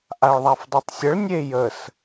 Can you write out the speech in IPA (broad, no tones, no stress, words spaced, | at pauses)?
ʔaɭðˤafdˤetˤsʲəɭ nʲejəs